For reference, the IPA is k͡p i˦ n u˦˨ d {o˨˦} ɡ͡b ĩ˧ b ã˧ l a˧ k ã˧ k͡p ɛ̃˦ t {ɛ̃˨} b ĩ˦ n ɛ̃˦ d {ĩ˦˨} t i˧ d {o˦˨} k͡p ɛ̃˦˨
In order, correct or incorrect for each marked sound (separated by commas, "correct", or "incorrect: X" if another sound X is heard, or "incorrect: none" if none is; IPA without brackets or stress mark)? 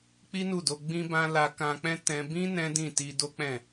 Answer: incorrect: o˧, incorrect: ɛ̃˧, correct, incorrect: o˦